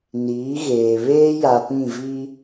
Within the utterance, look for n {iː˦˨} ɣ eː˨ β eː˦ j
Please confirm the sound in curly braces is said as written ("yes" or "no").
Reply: no